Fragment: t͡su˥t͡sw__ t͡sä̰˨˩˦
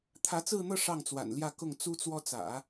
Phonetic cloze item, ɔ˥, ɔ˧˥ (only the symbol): ɔ˥